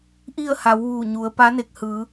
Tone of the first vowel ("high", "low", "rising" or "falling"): falling